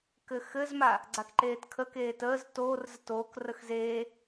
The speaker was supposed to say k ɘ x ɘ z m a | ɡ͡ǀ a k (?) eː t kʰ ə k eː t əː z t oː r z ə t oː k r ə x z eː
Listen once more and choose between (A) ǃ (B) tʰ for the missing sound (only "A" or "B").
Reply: A